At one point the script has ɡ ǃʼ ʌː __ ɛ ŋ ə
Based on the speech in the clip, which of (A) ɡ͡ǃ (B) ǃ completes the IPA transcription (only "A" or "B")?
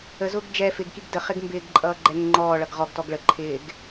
A